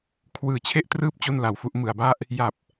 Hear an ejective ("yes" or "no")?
no